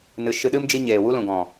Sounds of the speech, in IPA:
n ɨ˨ ʃ ɨ˧ ɗ ɨ˦ m d͡ʒ i˦ ɲ eː˨ w u˦ l ũ˨ ɡ ɔ̃˨

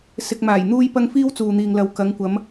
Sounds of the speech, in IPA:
s ɪ˧ k̚ m aː˨˩ j n̪ uː˥ j p ɐ˥ ŋ f iː˥ w t͡s uː˨ n̪ iː˨ ŋ l ɐ˨ w k ɐ˨˧ ŋ kʷ ɐ˨˧ m

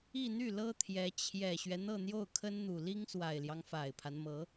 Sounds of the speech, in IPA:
i˥˧ n̪ y˥˩ l ɤ˥ t̪ʰ j ɛ˧˥ t͡ɕʰ j ɛ˨˩ ɕ ɥ ɛ˦ n̪ ɤ˥˧ n̪ j o˥˩ ʊ̯ kʰ ə˥ n n̪ u˨˩ l i˥ ŋ s w a˨˩ ɪ̯ l j ɑ˦ ŋ f a˨˩ ɪ̯ pʰ a˦ n m ɤ˧˥

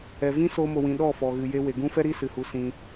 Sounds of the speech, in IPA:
ɛ˨ v ĩ˦ s oː˧ m o˨ w ĩ˨ ɗ ɔ˦˨ f ɔ˨ ɣ ɨ˨ j e˧ w e˨ ɡ ũ˦ f ɛ˦ ɾ i˦ s ɨ˨ h u˧ s ĩ˧

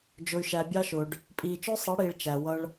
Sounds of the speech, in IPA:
d͡ʒ ʊ˨ y̯ ʃ æ˨ bʲ ɑ˧ ʃ ʊː˨ ɖ | pʼ iː˨ t͡ʃ ʊː˦ sˤ ʌ˨˦ ɽ iː˨ ɭ t͡ʃ æ˨ w ʌ˧ ɭ

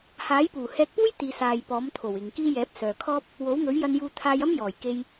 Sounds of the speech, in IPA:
h aː˨˥ j p uː˨˩ h ɛː˧ k̚ p uː˥ j t̪ iː˨ s aː˨ j p ɔː˨˥ m t̪ʰ o˨˩ w ɪ˨ ŋ k iː˥ j ɛː˨˥ p̚ s œː˨ kʰ ɔː˥ p̚ | w o˨˥ w ŋ ɵ˨˥ ɥ j ɐ˧ n j uː˧ t̪ʰ aː˧ j ɐ˥ m j ɔː˨˩ j k e˧ j

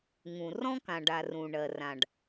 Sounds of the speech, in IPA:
ŋ ũ˩ r ɔ̃˥ k ã˩ ɖ a˩ r ũ˩ ɳ ɜ˩ r ã˩ ɖ

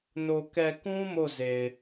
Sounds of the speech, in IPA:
n o˨ k ɛ˨ k ũ˦ m o˦˨ z e˨ ɪ̯

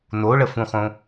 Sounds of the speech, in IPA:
n o ɭ ə f ũ χ õ

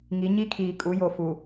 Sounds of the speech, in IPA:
ŋ i˨˦ ɲ i˦ kʰ iː˨ kʼ u˨˦ j o˨ f u˨

